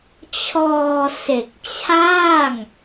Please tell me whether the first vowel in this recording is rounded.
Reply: yes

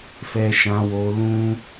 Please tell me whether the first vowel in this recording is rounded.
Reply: no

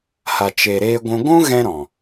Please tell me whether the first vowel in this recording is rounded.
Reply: no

